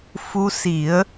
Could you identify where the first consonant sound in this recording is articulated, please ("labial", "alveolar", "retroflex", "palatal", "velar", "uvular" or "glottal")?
labial